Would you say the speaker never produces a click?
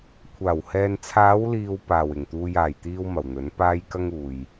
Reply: yes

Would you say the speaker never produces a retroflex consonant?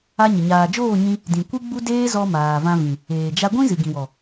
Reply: yes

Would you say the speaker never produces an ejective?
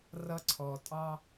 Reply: no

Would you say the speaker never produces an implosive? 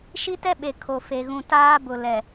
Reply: no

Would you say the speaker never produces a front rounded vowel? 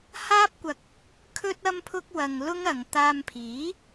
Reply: yes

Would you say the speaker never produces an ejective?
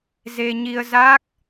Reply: yes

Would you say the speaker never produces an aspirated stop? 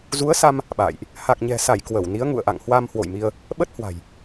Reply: yes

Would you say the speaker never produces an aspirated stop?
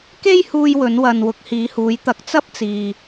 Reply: yes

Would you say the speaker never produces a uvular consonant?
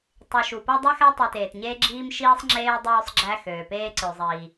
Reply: yes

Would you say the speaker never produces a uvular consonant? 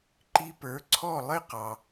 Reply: no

